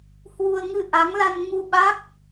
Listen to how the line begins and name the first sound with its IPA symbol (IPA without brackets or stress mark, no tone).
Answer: h